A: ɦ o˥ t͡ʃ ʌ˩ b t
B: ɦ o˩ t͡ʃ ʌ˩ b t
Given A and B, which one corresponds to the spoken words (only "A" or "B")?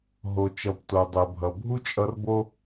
B